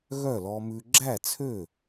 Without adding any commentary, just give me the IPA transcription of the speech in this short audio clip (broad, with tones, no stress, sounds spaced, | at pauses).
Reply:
ɣ œ˥˩ l ɔ˧ m ʉ˧ ɡ͡ǁ æ˥˩ t͡sʰ ø˥˩